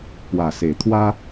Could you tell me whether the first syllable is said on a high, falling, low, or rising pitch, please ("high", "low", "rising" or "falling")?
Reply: low